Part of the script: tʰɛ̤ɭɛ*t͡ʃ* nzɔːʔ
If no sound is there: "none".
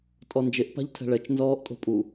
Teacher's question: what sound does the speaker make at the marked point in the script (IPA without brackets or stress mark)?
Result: t͡ʃ